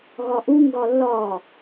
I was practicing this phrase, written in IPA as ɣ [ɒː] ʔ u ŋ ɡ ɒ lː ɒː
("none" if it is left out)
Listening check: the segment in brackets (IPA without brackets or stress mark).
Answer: ɒ